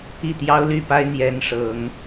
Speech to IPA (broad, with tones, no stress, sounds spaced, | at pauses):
i˥˩ t̪ j ɑ˥ ʊ̯ l y˥˩ p a˥ ɪ̯ n̪ j ɛ˧˥ n ʂ ɤ˨˩˦ ŋ